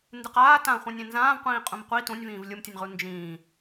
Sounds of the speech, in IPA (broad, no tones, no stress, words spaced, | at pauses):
ndɨqaː tãχʷĩ nʲẽnzãːvqʷĩː qʼũmqʷi tũnʲvĩːv lʲɯmtʲənʲʁu nd͡ʒĩː